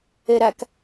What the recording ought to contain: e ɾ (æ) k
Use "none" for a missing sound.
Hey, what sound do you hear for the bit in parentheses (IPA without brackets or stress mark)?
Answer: æ